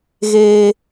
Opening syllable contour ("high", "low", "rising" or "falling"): high